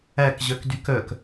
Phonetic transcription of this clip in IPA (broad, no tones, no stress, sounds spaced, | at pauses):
æ k ʑ œ k d y k œ k